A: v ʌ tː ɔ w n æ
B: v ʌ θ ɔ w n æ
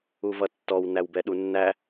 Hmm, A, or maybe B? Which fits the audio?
A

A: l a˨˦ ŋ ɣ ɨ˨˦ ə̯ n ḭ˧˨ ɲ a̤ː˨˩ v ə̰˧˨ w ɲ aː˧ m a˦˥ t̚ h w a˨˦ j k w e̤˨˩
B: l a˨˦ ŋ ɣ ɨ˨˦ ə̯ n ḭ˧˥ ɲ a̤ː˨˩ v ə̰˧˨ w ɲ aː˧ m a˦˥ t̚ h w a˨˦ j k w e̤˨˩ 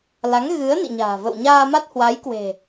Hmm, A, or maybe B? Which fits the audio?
A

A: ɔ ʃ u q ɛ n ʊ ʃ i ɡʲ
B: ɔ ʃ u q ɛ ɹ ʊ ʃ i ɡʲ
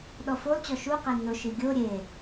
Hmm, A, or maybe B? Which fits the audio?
A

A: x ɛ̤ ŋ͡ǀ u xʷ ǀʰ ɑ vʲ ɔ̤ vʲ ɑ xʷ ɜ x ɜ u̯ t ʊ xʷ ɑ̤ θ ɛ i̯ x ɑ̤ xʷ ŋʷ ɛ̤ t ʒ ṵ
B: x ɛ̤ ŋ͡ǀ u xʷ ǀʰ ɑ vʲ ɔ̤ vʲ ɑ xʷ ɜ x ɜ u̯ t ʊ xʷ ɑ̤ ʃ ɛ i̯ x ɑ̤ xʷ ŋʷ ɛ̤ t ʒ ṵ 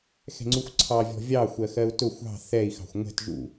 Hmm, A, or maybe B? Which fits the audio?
A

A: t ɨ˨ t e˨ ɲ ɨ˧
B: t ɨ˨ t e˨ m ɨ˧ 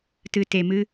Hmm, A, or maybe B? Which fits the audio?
B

